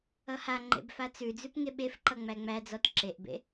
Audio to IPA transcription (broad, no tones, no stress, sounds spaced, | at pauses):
ʌ h a ŋ͡ǃ ḛ b f a t͡s ʉ d͡z ʉ p ŋ e ɓ e f ǃ ʌ ŋ͡m æ ŋ͡m æ d͡z ɔ t ǁ e ʔ b ḛ